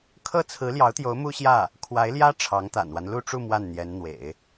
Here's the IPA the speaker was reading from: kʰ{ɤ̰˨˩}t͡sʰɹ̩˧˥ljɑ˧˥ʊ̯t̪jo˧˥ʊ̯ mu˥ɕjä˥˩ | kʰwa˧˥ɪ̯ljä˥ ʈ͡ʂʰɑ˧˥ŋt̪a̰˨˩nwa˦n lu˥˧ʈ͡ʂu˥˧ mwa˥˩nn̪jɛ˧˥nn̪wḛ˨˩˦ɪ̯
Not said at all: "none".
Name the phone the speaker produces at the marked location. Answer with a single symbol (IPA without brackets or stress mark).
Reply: ɤ˥